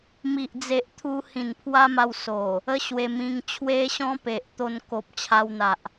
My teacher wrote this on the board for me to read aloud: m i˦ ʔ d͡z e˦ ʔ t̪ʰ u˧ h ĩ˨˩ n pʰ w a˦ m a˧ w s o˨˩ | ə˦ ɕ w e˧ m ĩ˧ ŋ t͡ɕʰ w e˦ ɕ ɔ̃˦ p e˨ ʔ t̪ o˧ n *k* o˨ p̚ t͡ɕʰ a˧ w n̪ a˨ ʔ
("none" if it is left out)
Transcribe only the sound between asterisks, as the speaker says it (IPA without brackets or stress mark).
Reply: k